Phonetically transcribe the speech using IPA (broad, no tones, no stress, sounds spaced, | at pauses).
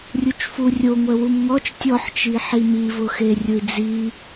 rʲ u t͡ʃ f u rʲ o ŋʷ ɛ w u m ŋ ɔ t͡ʃ tʲ ɔ ħ t͡ʃ i ħ i m i v ʊ x e rʲ ʊ i̯ d͡z i